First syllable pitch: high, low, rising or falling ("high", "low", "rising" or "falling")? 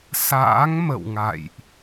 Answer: rising